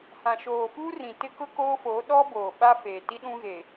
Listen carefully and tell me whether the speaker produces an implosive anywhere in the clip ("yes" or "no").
yes